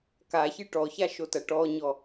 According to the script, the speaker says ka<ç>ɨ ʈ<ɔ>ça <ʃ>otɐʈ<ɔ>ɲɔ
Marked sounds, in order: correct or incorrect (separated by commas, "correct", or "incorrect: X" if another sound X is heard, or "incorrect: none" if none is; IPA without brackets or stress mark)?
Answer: correct, correct, correct, correct